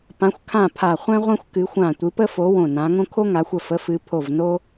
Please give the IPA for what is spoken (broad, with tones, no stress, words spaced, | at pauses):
pã˨˦xʷ kʰã˧˩ pʰa˧˩ χʷɛ̃˦ʁʷɛ̃˦xʷ kɨ˨˦xʷã˧˩ tʷɨ˨˦pə˦fo˨˦ wõ˧˩nã˨˦ŋõ˦ kʰo˦ŋa˨˦xʷə˧˩ fə˨˦fɨ˨˦pʰo˧˩vno˦